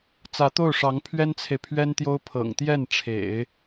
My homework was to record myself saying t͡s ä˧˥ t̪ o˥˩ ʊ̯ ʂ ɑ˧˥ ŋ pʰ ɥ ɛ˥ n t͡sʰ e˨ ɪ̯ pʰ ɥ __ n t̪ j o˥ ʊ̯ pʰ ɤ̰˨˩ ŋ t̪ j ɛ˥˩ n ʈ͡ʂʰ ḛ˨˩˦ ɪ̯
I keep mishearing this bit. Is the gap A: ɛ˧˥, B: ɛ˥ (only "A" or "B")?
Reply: B